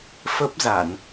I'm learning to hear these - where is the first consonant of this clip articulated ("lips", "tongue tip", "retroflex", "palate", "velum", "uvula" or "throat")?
lips